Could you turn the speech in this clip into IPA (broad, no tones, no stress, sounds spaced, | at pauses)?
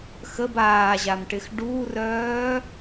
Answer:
x ə b aː ʑ a m ʈ ɪ x ɖ uː r œː